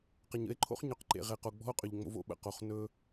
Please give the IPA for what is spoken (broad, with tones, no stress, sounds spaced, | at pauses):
q ə˨ ɲ ə̰˦ e̯ ǃʰ o̰˦ χ ɲ ɵ˨˦ q ǃ ḛ˨ ʁ e˨ q o˨ ɡ͡b ɔ̤˦ o̯ qʼ ʏ˨ ʎ ŋ͡m o̰˦ v o̰˦ ɓ ə̰˨ q o˨ χ n ɵ˦